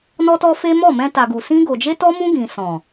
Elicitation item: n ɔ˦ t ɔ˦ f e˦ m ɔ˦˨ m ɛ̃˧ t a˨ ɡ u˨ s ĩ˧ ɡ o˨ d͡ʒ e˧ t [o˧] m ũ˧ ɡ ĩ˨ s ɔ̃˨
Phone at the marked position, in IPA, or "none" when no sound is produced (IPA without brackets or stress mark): ɔ˧